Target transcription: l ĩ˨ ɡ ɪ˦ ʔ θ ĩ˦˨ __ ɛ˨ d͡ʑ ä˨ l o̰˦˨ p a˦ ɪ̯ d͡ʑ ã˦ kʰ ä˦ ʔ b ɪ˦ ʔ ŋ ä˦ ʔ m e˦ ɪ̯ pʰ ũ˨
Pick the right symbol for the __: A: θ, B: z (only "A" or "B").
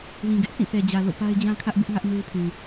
A